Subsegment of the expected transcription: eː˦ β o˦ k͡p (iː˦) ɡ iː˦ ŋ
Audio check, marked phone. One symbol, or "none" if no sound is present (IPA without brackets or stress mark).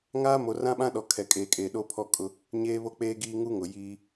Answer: eː˦